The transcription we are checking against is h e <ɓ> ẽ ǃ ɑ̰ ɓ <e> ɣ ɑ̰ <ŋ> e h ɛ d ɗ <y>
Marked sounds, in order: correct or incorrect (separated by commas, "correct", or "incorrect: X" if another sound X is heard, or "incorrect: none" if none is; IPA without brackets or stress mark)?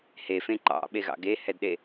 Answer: incorrect: f, correct, incorrect: ɡ, incorrect: e